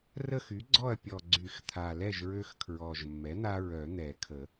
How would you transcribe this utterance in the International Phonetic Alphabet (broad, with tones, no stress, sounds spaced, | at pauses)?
r ə˥˨ x y˩˥ ɡ͡ǀ ɔ˥˨ ɐ̯ pʲ ɔ˨˩ ɡ͡ǀ y˨˩˦ x t̪ʰ a˨˩ l ɛ˥˨ ʒ ɹ ø˦ x kʰ ɹ ɔ˨˩ ʒ mː ɛ˩˥ n̪ a˦ ɹ œ˨˩˦ n̪ ɛ˨˩˦ kʰ ə˨˩˦